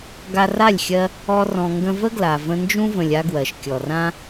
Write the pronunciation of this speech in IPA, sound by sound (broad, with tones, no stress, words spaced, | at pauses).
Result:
ɡa˧ra˦˨lʲxʲɜ˧ | ɔ˦rɔ̃˧ ŋɡə̃˧və˦ɡla˨ və̃˧nd͡ʒũ˦və̃˨lʲ a˦ɡwɜ˨ʃ kʲɔ˨rã˦